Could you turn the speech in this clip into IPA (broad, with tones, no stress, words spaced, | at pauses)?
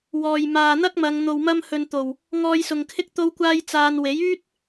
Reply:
wɔː˨j maː˨n̪ɐ˥k̚mɐ˨˧ŋ n̪o˨wmɐ˧m hɵ˨n t̪o˨˩w | ŋɔː˧jsʊ˨ŋkʰɪ˥k̚ t̪o˧wkʷaː˧j t͡saː˧n we˨˥jyː˥t̚